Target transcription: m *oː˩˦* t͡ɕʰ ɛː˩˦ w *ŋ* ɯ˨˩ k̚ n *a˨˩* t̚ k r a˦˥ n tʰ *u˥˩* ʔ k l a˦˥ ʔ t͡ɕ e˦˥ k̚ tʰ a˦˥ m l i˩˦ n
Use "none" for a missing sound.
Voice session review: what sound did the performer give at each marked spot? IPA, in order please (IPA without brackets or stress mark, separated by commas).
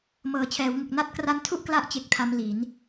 ɤː˩˦, ŋ, a˥˩, u˥˩